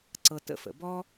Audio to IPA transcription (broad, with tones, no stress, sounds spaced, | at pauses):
ǀ ɤ˧ t ə̰˦ f ə̰˨ b ɔ˦